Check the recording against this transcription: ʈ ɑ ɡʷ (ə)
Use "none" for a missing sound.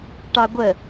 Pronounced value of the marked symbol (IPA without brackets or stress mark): ə